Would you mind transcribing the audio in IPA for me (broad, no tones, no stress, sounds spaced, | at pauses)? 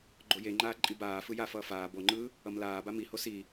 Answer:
ɡ͡ǃ o j e ŋ͡ǃ aː ǃʼ i b aː f ɯ j a f ʌː f aː b o ŋ͡ǃ ɯː | ʌ m l aː b a m i h o s i